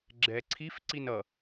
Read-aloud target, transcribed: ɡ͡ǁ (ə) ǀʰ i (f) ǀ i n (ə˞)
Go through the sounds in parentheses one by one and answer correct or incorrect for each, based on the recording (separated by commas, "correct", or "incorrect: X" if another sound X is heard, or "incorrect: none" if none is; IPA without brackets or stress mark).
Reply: incorrect: ɛ, correct, incorrect: ʌ